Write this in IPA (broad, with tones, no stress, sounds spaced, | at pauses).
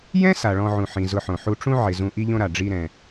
j ɛ̃˥ s a˩ ɭ ɔ̃˨ ʕ ũ˩ ħ ĩ˩ z ʊ˨ ħ õ˩ ħ u˨ ʈ͡ʂ ũ˦ ʕ ɪ˩ z ũ˨ ʔ i˦ ʎ õ˦ ɾ a˩ ɖ͡ʐ i˨ ɾ ɛ̃˩